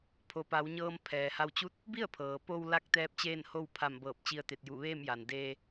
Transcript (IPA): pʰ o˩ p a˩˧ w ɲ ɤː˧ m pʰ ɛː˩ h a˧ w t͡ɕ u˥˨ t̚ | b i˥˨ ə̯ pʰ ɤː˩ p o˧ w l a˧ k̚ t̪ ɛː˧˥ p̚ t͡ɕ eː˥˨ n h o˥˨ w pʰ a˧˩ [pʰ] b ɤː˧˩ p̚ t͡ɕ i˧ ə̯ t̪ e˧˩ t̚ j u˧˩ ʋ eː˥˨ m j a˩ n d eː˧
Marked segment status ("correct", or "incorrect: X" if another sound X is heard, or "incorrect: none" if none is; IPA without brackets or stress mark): incorrect: m